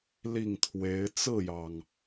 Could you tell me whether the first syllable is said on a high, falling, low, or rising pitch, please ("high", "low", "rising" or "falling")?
falling